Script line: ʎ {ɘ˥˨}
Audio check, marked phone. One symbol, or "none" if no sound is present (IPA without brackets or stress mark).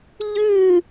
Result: ʉ˥˨